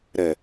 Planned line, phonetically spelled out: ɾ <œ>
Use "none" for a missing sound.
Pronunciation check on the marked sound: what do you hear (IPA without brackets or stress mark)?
ɛ